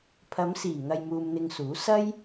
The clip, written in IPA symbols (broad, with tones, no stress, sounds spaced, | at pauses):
pʰ ɐ˨˧ m s iː˨˩ ŋ ɐ˧ j m uː˧ m n̪ ɪ˧ ŋ s uː˨˥ s ɐ˥ j